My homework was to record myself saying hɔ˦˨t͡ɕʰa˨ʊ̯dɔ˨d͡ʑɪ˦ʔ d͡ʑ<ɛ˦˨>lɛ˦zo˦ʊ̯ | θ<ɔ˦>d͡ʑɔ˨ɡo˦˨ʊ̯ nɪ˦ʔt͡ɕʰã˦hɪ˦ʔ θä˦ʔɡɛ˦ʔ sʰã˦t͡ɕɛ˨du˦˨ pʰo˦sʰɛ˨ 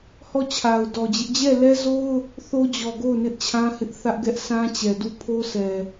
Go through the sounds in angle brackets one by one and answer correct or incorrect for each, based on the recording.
correct, incorrect: o˦

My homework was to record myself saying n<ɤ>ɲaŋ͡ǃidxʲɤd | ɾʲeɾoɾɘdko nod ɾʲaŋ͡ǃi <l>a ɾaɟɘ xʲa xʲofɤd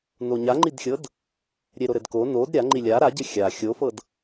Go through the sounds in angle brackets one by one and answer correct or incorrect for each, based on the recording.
incorrect: o, incorrect: lʲ

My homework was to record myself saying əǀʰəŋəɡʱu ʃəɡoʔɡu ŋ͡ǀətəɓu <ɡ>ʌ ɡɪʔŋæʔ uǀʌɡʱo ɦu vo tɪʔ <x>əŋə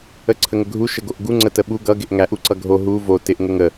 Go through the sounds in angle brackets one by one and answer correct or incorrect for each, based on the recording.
correct, incorrect: ŋ

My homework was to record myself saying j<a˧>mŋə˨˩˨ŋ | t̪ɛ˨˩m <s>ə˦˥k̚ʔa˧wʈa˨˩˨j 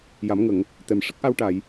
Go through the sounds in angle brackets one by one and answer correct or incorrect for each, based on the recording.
incorrect: a˨˩˦, incorrect: ʂ

